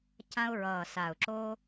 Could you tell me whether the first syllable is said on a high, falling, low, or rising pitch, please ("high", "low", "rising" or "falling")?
high